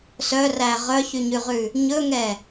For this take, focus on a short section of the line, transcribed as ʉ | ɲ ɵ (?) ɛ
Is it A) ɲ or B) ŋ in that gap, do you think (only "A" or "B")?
B